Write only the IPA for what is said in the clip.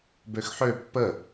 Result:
b ø x ħ ø pː ə

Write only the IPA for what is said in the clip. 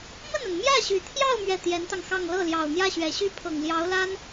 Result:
m ə˥˩ n a˩ n m j ä˥˩ ɕ y˨˩ t̪ʰ j ɑ˥˧ ʊ̯ m ɥ ɛ˥˩ t̪ j ɛ˧˥ n t̪ ɑ˧ ŋ x ɑ˥˧ ŋ l ɤ˥˩ l j ɑ˨˩ ʊ̯ n̪ j ä˥˩ ɕ ɥ ɛ˨˩ ɕ y˥ pʰ ɤ˨˩ ŋ l j ɑ˧˥ ʊ̯ l a˥ n

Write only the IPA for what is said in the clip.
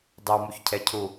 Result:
dˤ ɯ w m u ç cʰ ɛ cʰ u

